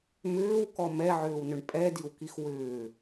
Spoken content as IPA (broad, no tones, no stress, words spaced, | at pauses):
mʏːwkɔ mɛʕʏːwnʏɳ pʼɛdiwkix wʏː